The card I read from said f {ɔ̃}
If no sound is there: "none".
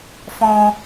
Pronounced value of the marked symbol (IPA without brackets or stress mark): ɔ̃